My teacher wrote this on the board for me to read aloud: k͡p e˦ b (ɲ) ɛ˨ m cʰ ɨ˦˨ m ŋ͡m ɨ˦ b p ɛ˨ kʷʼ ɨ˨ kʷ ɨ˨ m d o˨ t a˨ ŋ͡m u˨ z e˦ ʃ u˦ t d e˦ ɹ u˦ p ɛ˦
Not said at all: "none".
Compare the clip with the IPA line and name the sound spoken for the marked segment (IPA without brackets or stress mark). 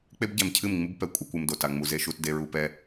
ɟ